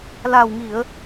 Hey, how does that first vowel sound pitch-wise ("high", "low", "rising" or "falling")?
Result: low